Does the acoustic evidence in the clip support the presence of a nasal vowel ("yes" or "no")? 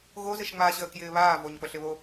no